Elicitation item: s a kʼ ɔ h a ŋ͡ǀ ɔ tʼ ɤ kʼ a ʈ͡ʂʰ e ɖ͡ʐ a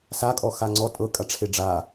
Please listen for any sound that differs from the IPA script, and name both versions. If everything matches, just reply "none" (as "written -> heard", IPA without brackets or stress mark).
h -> x